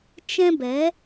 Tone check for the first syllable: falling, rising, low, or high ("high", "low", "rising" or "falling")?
high